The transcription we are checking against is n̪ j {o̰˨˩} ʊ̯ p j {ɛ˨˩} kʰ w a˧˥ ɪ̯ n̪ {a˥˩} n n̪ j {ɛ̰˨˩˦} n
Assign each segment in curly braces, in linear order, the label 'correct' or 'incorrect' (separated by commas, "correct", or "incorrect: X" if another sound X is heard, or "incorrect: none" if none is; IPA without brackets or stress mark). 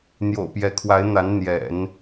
correct, incorrect: ɛ˧˥, incorrect: a˧˥, correct